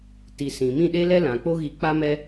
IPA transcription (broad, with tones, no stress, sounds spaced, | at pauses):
t i˨ s ĩ˨ m ĩ˦˨ ɗ e˦ l ɛ˦ l ã˨ k͡p o˦ ɣ i˧ k͡p a˦ m ɛ˦